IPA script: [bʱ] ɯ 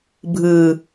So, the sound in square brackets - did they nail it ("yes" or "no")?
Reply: yes